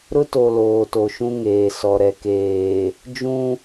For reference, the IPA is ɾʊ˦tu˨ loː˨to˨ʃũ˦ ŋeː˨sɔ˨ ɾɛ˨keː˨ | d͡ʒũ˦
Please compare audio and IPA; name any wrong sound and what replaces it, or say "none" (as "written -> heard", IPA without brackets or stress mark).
u˨ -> o˨